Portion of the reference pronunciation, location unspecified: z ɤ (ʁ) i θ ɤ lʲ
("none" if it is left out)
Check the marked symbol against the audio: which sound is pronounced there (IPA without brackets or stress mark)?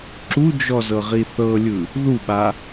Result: ʁ